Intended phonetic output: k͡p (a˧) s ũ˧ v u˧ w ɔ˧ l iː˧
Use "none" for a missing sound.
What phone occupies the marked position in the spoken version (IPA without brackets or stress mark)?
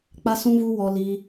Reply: a˧